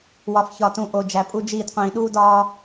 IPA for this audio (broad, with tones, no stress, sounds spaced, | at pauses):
w ɒ˨ f ç ɒ˨ t ũ˨ ʔ o˨ d͡ʒ æ˨ pʼ u˦ d͡ʒ iː˦˨ d qʷ ĩː˨ ɗ uː˦ d ɒː˦